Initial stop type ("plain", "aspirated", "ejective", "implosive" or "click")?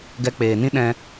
plain